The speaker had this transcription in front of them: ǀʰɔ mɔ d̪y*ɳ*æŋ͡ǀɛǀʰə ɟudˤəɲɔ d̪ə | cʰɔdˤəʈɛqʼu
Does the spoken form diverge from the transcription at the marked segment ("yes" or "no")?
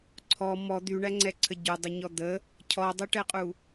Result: no